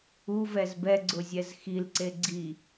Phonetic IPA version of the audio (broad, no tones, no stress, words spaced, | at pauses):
uvɛz bɛɡ͡ǀʊzʲɛz xilǀe ɡ͡ǀi